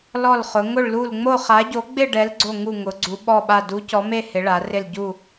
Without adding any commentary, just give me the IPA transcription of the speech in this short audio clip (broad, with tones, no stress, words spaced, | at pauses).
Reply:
lɔ˦˨lχʊ˨˦ ŋʊ˦˨ɭlu˦˨l ŋ͡mo˦˨ χa˨˦ɟo˨˦ɡ͡bɪ˦˨ ɖɛ˨˦lɡ͡ǀo˦˨ ŋu˦˨ŋʊ˨˦ ɡ͡ǀu˨˦ɓɔ˦˨ɓa˦˨ du˨˦ cɔ˨˦me˦˨ hɪ˨˦ɭa˨˦rɪ˦˨l ɟu˦˨